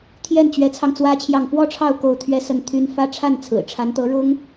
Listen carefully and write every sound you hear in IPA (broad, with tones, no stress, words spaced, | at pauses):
t̪ʰjɛ˥˩nt͡ɕɥɛ˧˥t͡sʰɑ˧ŋ t͡swä˥t͡ɕʰjɑ˥˩ŋ fwɔ˥ʈ͡ʂʰɑ˥˧ʊ̯ ko˥˩ʊ̯t̪ʰɥɛ˥sə˥˩nt̪ʰy˥n fä˥ ʈ͡ʂʰa˥˩nt͡sʰɹ̩˨˩ʈ͡ʂʰa˧˥nt̪ɤ˧˥ ɻʊ˥ŋ